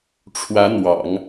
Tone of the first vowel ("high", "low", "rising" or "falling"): rising